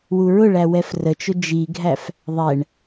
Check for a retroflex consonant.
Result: present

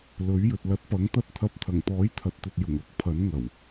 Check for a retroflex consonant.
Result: absent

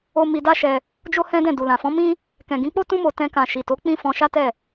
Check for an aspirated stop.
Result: absent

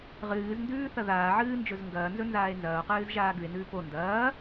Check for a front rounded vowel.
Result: absent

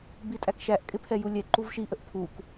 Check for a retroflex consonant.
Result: absent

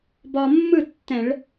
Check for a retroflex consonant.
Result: present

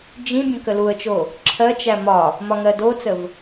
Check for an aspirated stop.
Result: present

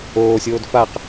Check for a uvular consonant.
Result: present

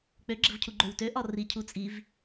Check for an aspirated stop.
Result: present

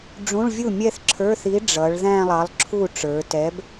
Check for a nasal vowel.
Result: present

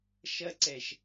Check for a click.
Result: present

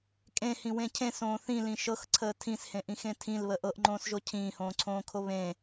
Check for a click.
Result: present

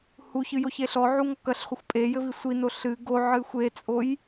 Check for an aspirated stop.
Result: absent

